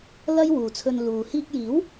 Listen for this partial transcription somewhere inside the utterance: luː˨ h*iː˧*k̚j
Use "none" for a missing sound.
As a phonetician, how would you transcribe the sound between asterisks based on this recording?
iː˧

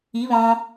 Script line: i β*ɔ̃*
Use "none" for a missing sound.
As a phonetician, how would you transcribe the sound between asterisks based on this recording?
ɔ̃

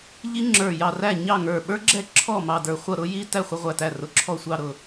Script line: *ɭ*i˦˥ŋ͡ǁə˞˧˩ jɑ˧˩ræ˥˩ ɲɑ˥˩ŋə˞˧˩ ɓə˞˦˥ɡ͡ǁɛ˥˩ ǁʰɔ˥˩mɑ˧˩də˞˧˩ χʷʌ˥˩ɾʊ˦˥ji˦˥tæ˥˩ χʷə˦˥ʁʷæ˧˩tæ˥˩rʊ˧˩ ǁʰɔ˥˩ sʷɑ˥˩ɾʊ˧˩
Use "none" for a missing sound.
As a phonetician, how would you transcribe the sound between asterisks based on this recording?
ʎ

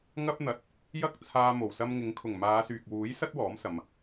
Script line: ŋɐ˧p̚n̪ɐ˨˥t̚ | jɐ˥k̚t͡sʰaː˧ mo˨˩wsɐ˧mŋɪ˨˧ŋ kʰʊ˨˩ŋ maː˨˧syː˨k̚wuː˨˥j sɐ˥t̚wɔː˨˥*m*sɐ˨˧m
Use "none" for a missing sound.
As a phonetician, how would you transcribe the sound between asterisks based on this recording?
m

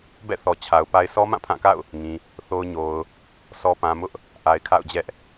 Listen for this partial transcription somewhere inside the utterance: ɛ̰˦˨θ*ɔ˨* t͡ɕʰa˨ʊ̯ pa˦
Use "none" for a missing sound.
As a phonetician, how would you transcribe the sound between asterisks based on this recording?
ɔ˨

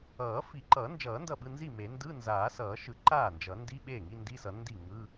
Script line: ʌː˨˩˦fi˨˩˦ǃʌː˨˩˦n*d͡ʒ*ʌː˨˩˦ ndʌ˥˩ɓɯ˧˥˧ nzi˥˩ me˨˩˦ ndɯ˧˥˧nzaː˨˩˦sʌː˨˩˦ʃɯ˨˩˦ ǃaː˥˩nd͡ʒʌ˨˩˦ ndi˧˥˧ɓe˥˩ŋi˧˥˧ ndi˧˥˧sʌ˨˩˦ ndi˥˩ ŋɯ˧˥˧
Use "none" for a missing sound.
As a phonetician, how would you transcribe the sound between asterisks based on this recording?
d͡ʒ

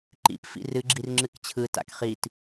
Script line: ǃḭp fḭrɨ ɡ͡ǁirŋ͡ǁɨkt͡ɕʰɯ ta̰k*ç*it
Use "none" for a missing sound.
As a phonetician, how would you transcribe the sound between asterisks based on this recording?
χ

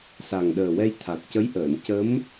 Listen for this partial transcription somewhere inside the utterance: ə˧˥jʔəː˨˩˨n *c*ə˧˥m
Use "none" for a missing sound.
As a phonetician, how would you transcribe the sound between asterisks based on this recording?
c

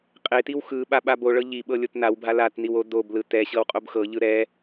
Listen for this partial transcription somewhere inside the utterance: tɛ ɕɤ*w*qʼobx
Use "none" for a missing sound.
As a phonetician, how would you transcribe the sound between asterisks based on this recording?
w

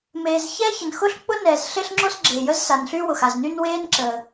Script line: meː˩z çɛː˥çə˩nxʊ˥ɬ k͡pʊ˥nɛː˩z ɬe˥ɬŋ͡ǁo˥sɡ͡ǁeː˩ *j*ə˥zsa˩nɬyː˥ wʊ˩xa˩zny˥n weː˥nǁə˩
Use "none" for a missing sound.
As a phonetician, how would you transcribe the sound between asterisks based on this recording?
j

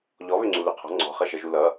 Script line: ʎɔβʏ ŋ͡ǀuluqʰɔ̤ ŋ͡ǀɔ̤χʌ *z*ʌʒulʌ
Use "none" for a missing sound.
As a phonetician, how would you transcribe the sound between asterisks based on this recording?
ʃ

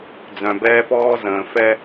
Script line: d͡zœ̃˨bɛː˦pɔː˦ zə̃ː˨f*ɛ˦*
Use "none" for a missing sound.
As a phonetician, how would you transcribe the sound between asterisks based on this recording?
ɛ˦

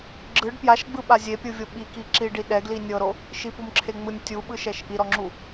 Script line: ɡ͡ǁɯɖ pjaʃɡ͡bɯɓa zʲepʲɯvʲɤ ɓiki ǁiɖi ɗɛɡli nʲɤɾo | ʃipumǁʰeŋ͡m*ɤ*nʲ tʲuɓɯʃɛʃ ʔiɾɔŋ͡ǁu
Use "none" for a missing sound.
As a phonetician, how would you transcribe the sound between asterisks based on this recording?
ɯ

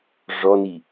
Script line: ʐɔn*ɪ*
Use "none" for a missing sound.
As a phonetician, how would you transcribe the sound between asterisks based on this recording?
i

